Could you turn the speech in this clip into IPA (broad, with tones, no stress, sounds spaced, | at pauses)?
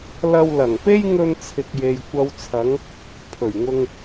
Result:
l ɐ˧ w l ɐ˨˩ ŋ p e˥ j ŋ ɵ˧ n t͡sʰ ɪ˨ k̚ j e˨ j kʷ ɐ˨ w t͡sʰ ɐ˨˧ ŋ | pʰ ɵ˨˩ ɥ ŋ ʊ˧ ŋ